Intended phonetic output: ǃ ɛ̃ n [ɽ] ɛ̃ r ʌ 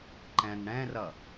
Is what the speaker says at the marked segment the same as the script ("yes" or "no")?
yes